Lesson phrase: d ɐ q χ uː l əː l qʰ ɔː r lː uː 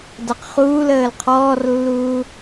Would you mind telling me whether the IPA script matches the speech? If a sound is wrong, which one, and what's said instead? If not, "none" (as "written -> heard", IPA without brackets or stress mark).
none